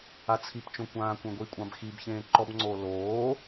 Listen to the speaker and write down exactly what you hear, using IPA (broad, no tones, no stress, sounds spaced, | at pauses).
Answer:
a t͡sʰ i p t͡ʃ õ kʷ ãː kʷ ẽ ɡʷ i kʷʼ ã b x i b ç ẽː ǃ ɔ b ŋ͡ǀ oː l oː